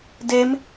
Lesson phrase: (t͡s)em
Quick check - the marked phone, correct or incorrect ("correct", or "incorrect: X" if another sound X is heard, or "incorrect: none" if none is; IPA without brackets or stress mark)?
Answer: incorrect: d